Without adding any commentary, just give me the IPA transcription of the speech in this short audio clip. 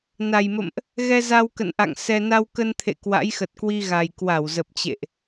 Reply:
n a˨˩ j m ə̰˧˨ m ʔ | ɣ ɛ˧ z a˧ w k ə̰˧˨ n ʔ a̰˧˨ ŋ s ɛ˧ n a˧ w k ə˧ n t̪ʰ ḛ˧˨ k w a̰˧˥ j x ə˨˩ t̚ k w i˧ ɣ a˨˩ j k w a˧˩ w z ə˨˩ p̚ t͡ɕ ḛ˧˨ ʔ

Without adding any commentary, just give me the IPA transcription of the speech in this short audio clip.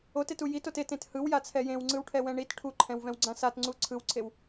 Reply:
o t e t u j i t o t e t ẽ t h ɯ w j a t͡sʰ ɛ j ẽ w ŋ͡ǀ ɯ w ʈʰ ɛ w ɛ̃ ɳ i t ʈʰ u ǃʰ ɛ̃ w v ɛ̃ w ɡ͡ǀ ã s a t ŋ͡ǀ u ǀʰ ɯ w ǀʰ e w

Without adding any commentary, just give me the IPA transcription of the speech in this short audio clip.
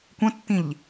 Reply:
kʷ ə̃ tː ĩ ʎ

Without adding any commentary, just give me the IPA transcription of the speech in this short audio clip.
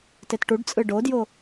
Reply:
t e t ʈ u ɖ t͡sʼ ɯ ɖ o d j o

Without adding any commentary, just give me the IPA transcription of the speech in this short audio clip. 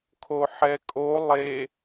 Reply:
kʰ o ħ ɛ kʼ o lˠ e

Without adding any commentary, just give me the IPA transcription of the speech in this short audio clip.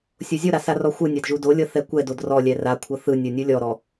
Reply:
sʲ o zʲ o ɾ a s a r ɔ xʷ ɯ nʲ a d ʒ u d o lʲ ɤ θ ɛ kʷ ɛ d o d r ɔ lʲ ɛ r a kʷʰ ɤ θ ɯ nʲ o nʲ u lʲ ɔ ɾ ɔ

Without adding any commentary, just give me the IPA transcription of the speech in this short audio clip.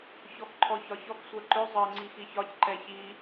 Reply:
ç ɔ x ǃʰ ɔ ç ɒ ç ɔ k sʷ ɜ ǃ ʏ zˤ ɜ ŋ͡ǀ i x i ç ɒ c ǃ ɛ ç i

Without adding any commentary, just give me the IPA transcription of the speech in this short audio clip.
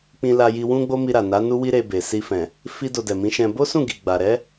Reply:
k͡p ĩ˧ l a˧ j i˧ w ũ˦ ɡ͡b o˦ m i˧ ɾ a˨ n a˨˦ n u˦ w i˦ ɾ e˧ b e˨ s i˧ f ɛ̃˨ | f i˦ d o˧ d ɛ˨ m ĩ˨˦ ʃ ɛ̃˧ b o˦ s ũ˦˨ ɡ i˨ ɡ͡b a˨ ɾ ɛ˨˦

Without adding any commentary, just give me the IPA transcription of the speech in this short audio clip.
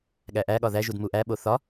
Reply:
ɠ æ ʔ æ ɠ ɒ ð æ ʒ u d m u ʔ æ ɓ o θ ɒ

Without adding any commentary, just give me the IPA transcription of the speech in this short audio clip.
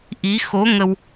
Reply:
ʔ i˧˥ x o˧˥ ŋ ə˧ w

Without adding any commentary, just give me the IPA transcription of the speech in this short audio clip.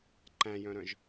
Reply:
ǃ æ̃ j œ̃ ɾ œ̃ ʒ

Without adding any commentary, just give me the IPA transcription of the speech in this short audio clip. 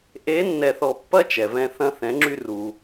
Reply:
ʔ e˧˥ nː ɛ˧ θ ɔ˧ pː ɐ˥ t͡ʃ ɛ˩ v ɛ̃˧ θ ɐ̃˧ θ ɛ̃˩˧ ŋ͡ǁ y˧ r u˩

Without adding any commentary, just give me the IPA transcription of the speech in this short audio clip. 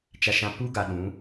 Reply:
t͡ʃ a˨ ʃ ã˨ p u˦ ɡ a˨ ɗ ũ˨˦

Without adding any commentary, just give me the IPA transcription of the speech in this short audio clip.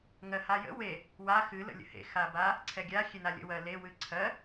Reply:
ŋ ɜ h a j ə̰ w e | w a x ɨ l ə̰ lʲ ə̰ h ḛ x a b a | ǀʰ ɛ ɡʲ a xʲ e n a lʲ ə̰ w ɜ l e w ɨ ǀʰ ɜ

